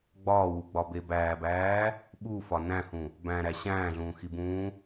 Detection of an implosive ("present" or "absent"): present